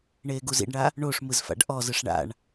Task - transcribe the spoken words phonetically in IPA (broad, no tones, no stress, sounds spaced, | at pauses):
ɳ eː ɡ u z ḭ ɖ ɳ a | ɳ o ʂ m ɯ z f a̰ ɖ ʔ ɔ z ɯ ʂ ɳ a̰ ɳ